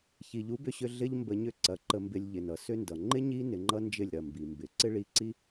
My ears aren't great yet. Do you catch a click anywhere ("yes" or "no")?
yes